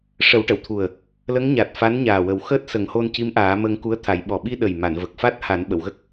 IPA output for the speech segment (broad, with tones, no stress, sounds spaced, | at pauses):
ʂ ə˨˩˦ w ʈ ə˨˩˨ w t̪ʰ u˨˩ ə̯ | l ə˧˥ ŋ ɲ a˨˩ t̚ f a˧˥ n ɲ aː˨˩ w ə˨˩˦ w x əː˦˥ t̚ s ə˨˩˦ ŋ h o˧ n c i˧˥ m ʔ aː˨˩˦ m əː˧ ŋ k u˧˥ ə̯ t̪ʰ a˨˩˦ j ɓ ɔ˨˩ ɓ i˧ ɗ ə˨˩ j m a˨˩˨ n v ə˨˩ k̚ f a˦˥ t̚ h a˨˩˦ n ɓ ə˨˩˨ w ɣ ə˦˥ k̚